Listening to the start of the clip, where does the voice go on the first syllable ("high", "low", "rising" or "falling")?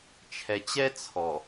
low